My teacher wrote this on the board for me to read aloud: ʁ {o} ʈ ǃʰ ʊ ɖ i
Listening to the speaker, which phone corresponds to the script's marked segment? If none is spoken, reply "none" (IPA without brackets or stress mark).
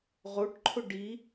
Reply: o